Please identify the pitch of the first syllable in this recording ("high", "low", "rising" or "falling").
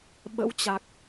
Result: rising